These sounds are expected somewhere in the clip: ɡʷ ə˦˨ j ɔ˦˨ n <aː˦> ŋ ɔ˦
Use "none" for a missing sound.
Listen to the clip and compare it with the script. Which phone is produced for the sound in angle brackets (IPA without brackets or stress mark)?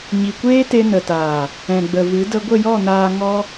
aː˧